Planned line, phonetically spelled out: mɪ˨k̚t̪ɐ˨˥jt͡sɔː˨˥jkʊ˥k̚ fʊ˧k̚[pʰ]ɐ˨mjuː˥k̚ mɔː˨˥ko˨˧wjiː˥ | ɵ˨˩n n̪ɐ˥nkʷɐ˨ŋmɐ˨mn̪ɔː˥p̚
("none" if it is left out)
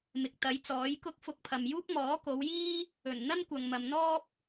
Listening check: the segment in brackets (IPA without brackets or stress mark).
pʰ